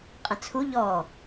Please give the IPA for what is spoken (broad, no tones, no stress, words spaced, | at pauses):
qʼə̃t͡sʰu ʎɔ